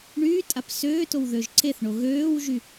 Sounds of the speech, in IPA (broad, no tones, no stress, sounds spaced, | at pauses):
ɳ yː tʼ a p s øː t o w ð ø ʒ ǀ e θ ɳ o ɣ øː w ʒ y